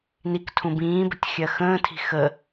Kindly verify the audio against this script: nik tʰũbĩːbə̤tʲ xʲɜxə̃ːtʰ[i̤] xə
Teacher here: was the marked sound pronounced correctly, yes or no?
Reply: yes